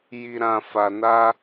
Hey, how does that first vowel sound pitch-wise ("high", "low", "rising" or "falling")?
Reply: low